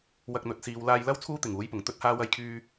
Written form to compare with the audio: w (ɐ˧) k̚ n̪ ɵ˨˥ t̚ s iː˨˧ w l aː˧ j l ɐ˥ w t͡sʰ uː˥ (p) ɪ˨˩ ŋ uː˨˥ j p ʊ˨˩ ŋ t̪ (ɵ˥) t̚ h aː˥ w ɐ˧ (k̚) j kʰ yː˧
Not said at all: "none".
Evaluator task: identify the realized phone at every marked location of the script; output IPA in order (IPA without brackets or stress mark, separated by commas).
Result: ɐ˧, t̪, ɵ˥, none